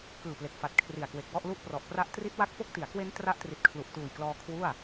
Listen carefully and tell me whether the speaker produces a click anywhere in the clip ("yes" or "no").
no